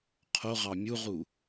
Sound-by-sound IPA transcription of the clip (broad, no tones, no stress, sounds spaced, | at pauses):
qʰ o ʁ ɑ mʲ u ʁ u